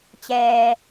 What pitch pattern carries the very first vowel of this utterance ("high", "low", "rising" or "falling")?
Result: low